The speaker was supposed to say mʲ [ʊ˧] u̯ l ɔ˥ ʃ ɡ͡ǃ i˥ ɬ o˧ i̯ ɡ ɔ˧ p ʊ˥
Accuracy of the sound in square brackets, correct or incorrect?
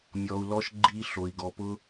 incorrect